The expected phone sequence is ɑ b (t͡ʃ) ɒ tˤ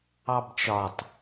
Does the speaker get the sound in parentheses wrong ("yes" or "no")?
no